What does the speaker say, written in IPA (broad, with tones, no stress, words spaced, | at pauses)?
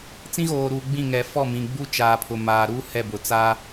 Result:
t͡sĩ˦ɣoː˨ɾuː˨ ɡ͡bĩ˦˨ŋɛ˨ fɔ˦˨mĩ˨ ɡ͡bu˦t͡ʃaː˨pʰʊ˨ maː˨ɾuː˦ hɛ˦˨bʊ˨ t͡saː˦